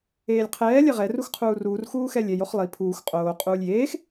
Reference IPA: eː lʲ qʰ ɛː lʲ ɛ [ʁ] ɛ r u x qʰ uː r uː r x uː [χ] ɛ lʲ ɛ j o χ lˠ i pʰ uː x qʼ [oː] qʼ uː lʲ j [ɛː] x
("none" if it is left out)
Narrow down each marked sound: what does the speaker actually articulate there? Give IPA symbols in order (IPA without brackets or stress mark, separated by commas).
ʁ, x, oː, eː